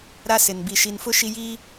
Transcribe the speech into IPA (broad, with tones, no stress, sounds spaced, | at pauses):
ɾ a˦ s ɪ˨ n b i˨ ʃ i˨ n f ʊ˦ ʃ i˦ j iː˦